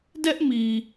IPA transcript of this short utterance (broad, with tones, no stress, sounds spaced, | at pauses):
d ɛ˦ ʔ m i˨